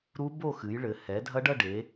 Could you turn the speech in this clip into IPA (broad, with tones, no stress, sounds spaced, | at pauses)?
ɾ u˦˥ b o˥˧ x ɨ˩˧ j ɭ ɘ˩˧ h ɛ˩˧ dʱ ɐ˦˥ ɖ ɐ˥˧ ɖ e˩˧